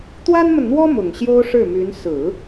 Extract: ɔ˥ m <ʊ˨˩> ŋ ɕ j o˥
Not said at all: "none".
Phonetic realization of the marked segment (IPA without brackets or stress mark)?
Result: ʊ˨˩